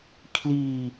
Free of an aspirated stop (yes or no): no